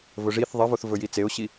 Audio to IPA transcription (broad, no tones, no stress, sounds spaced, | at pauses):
v ɵ ʐ i θ ðˤ i v o θ v ɵ j i t͡s e ʊ̯ ɕ i